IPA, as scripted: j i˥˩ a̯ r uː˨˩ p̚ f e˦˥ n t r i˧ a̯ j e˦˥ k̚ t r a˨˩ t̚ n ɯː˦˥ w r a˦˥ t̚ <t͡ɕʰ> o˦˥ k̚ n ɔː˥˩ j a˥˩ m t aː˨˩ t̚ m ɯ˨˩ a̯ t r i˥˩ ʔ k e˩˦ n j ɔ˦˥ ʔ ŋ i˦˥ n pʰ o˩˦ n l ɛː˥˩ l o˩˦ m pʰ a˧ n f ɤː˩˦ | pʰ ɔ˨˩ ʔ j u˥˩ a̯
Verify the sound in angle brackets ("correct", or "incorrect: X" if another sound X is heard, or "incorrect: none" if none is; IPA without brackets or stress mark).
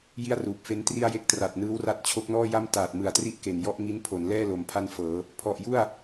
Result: correct